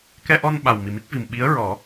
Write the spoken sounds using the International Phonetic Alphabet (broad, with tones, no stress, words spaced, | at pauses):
kɛ˧ʔɔ˧n ɓa˨˩wmi˨˩mi˦˥k̚vi˨˩m ɓi˧˥ə̯ɹɔ˨˩˦